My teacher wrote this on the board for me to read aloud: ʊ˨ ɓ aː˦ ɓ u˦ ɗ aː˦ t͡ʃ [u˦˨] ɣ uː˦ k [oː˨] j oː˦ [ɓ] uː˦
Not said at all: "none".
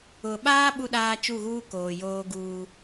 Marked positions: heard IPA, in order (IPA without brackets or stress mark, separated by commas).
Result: u˦˨, oː˨, ɡ